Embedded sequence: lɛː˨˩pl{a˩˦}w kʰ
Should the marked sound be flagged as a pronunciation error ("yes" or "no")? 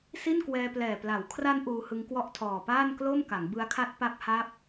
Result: no